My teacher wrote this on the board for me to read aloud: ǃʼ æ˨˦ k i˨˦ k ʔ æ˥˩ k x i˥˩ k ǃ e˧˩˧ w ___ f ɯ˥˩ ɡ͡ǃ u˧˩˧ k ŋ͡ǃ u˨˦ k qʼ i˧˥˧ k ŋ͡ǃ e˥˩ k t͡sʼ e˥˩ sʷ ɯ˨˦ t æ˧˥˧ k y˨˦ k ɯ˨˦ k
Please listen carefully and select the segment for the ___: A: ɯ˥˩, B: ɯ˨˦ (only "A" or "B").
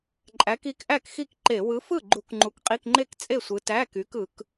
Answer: B